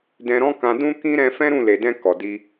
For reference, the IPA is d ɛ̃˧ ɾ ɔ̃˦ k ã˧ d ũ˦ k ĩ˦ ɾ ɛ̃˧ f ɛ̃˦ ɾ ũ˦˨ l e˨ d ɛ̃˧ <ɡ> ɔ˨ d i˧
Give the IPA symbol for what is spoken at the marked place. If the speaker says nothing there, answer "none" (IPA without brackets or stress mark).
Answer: k